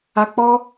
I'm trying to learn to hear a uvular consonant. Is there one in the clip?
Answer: no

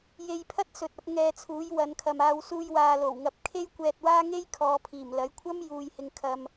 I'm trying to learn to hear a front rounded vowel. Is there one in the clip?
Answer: no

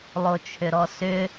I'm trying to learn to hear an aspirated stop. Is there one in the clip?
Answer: yes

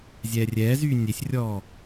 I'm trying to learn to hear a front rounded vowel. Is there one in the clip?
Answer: yes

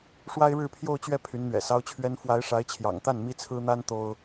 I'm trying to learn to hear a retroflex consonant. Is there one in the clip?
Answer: yes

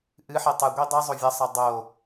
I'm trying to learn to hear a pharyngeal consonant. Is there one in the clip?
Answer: yes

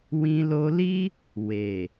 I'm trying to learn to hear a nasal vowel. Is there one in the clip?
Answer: yes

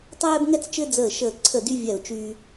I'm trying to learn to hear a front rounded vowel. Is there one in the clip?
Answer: yes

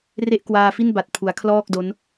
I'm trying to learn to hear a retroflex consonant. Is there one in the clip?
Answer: no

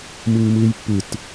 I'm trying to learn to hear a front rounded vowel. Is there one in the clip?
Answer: no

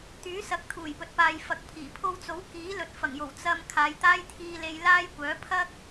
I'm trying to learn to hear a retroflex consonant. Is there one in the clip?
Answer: no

